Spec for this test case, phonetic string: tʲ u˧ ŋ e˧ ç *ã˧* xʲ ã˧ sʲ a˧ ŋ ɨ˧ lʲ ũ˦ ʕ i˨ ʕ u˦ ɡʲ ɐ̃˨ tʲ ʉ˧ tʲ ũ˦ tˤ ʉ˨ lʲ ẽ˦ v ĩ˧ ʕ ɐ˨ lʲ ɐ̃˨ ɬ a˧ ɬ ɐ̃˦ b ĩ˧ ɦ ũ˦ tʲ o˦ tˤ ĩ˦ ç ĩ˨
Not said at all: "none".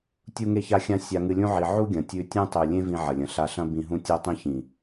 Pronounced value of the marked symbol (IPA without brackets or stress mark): a˧